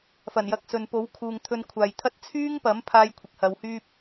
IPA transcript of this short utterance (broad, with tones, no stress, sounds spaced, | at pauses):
f ɐ˨˩ n j ɐ˧ k̚ s ɵ˨ n p o˨˥ w kʰ uː˨ ŋ t̪ʰ ɵ˧ n kʷʰ aː˨ j t̪ʰ ɐ˥ t̚ t͡sʰ yː˥ ŋ p ɐ˨˥ m pʰ aː˥ j kʷʰ ɪ˨ k̚ h ɐ˨˧ w h yː˥ p̚